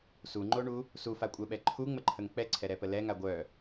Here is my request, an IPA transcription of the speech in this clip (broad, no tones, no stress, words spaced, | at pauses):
suŋ͡ǃoɳu | sufakʷʼœɓɛ ǃʰuŋ͡məǃʰəŋ k͡pɛǀʰɛɾɛpə lɛŋa ɡʷœ